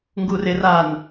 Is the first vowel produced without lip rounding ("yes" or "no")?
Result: no